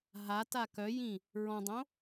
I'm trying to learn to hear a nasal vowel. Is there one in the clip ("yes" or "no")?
yes